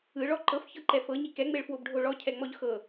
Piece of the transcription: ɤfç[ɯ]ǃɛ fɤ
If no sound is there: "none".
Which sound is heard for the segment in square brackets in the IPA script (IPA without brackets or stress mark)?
ɤ